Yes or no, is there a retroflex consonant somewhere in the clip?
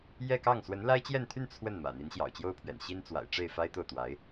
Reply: yes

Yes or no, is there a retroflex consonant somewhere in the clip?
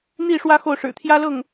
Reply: yes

